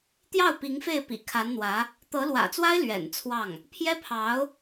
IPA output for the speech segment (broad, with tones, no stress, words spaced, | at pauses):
t̪jɑ˥˩ʊ̯ pi˧˥ŋfe˥˩ɪ̯ pḭ˨˩kʰa˧˥nn̪wä˧˥ | t̪ɤ˧˥lwä̰˨˩t͡swa˥ɪ̯ lɥɛ̰˨˩nt͡sʰwɑ˥˩ŋ | pʰjɛ˥pʰɑ˧˥ʊ̯